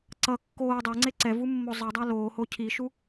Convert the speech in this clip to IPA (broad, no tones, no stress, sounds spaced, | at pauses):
ǀ ʌ kː oː dˤ ɛ ŋ͡ǀ e ǀ ɛ v u mː o zˤ ʌ dˤ a l oː h o cʰ i ʃ u